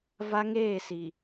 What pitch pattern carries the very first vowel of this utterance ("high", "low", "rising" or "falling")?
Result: high